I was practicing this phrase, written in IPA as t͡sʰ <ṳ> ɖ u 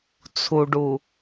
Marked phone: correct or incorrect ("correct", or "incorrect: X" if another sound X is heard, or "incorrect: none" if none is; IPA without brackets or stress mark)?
incorrect: u